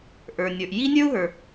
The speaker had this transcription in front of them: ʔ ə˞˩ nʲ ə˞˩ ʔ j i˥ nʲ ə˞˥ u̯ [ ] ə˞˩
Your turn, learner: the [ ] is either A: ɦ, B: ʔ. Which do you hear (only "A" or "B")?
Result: A